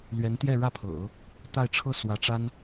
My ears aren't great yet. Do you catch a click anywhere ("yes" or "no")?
no